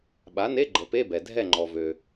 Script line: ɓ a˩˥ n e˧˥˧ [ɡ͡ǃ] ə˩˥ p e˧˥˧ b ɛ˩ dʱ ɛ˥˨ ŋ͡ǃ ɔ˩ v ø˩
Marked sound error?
no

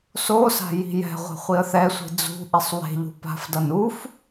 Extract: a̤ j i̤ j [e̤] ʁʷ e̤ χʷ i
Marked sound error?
yes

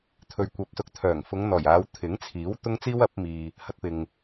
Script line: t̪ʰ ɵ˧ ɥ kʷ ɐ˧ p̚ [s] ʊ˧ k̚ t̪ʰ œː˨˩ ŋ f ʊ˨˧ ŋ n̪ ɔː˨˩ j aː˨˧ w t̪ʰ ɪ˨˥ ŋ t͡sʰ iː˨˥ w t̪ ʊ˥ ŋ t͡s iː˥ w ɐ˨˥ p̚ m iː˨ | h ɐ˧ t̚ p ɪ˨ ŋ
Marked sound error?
no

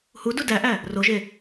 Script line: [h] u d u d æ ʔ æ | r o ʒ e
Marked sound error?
no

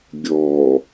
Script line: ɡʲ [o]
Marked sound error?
yes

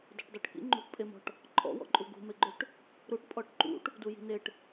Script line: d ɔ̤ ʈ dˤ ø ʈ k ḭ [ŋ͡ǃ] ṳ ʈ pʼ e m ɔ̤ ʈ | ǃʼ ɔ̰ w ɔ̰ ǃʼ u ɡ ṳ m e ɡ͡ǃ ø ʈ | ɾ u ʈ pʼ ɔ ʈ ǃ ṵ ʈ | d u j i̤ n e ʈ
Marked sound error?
no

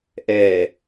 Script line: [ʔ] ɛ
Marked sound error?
no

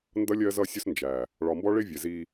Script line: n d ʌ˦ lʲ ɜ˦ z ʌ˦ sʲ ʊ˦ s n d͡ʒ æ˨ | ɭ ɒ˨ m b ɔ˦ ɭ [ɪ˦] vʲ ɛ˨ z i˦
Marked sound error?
no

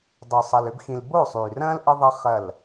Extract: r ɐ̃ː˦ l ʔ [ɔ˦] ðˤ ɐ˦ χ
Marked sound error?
yes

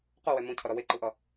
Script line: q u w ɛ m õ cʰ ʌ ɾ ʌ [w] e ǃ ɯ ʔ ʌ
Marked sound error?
no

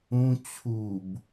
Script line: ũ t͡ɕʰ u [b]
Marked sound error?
no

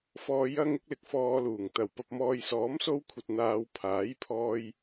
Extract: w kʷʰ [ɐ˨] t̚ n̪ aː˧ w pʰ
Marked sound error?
no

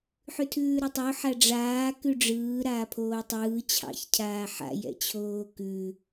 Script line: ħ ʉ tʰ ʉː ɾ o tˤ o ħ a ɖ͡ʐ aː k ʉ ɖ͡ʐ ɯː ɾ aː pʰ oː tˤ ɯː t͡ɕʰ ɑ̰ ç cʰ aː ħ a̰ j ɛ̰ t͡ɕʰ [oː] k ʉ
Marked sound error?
no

